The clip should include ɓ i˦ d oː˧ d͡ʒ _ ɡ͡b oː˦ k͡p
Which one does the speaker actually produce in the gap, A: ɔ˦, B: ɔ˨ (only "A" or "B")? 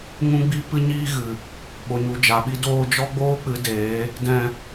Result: A